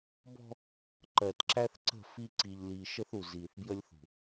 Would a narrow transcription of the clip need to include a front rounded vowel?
no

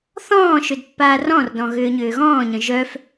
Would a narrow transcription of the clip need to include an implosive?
no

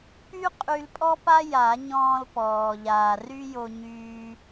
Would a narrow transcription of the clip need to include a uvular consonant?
yes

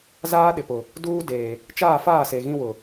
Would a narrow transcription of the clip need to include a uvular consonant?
no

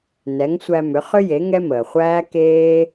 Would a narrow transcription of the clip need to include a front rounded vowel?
yes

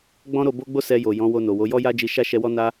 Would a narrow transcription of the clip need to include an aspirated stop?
no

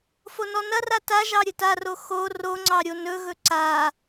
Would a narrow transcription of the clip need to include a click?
yes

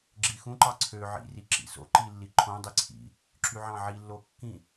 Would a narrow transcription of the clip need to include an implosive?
no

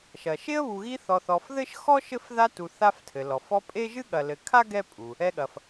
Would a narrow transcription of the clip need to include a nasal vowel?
no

